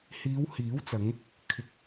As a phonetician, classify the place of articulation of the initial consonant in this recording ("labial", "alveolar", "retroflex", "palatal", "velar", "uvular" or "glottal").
glottal